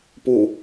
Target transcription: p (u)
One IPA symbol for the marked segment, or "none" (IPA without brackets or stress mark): u